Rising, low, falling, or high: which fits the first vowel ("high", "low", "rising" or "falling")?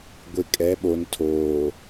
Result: low